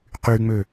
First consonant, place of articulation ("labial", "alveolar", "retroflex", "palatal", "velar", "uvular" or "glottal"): uvular